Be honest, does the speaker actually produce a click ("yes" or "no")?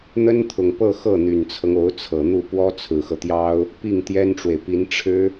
no